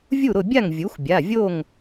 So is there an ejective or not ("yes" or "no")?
no